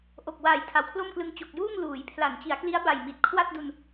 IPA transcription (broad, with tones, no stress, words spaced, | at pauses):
ʔo˨˩k̚waː˨˩j tʰa˨˩wkʰlo˥˩mklɯ˧ŋ t͡ɕo˨˩k̚juː˥˩ŋ luː˩˦jpʰla˩˦nt͡ɕi˩˦a̯kli˦˥a̯ ba˨˩jmi˨˩t̚ kʰwa˥˩t̚du˧n